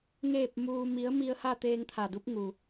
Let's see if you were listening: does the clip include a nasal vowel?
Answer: no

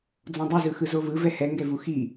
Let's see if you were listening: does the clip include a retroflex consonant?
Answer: no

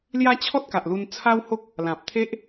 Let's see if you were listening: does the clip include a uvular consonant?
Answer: no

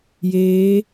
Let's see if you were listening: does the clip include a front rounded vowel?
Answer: no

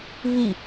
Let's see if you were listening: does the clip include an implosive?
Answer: no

